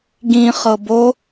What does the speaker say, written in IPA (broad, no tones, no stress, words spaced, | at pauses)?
ɡĩχɤ bo